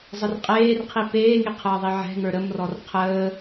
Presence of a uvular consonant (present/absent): present